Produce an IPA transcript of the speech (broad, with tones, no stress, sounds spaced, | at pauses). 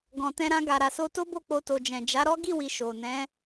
ɡ ɔ̃˨ t ɛ̃˧ ɾ ã˧ ɡ a˨ ɾ a˨ s o˧ t o˦ b o˦˨ k͡p o˧ t o˨ d͡ʒ ɛ̃˨ d͡ʒ a˨˦ ɾ ɔ˦ ɡ i˦˨ w i˨ ʃ o˨ n ɛ̃˨˦